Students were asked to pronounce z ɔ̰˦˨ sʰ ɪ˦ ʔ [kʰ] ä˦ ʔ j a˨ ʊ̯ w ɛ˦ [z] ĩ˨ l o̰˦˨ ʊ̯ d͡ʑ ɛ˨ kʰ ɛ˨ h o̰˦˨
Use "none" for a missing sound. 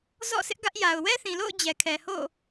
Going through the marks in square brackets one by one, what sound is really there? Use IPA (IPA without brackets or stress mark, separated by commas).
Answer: ɡ, θ